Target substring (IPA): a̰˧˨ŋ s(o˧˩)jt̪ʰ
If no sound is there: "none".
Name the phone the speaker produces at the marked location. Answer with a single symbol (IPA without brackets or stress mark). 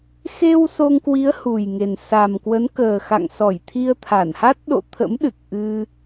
ɔ˧˩